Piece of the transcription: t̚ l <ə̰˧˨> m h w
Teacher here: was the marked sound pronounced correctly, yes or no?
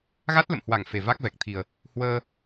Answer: yes